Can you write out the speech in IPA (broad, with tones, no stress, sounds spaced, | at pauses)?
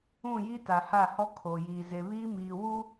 ũ˦˨ j i˦ t a˨ h a˦˨ h ɔ˦ kʰ oː˨ j iː˨ z e˨ β iː˦ m iː˨ w uː˦